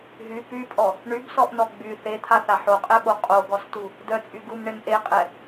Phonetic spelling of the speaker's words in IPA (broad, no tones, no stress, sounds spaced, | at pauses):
ɦ y p y pʼ ɔ | ɳ y b s ɔ ʔ n ɔ ɡ͡b y θ e t̪ʰ a θ a ħ o qʼ ɛ ɓ o qʼ o ɡ ɔ s t u | d œ t͡sʼ y ɡ u m ɳ e m ʔ e qʼ ɛ